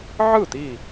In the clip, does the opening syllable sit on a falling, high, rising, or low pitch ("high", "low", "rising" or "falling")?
falling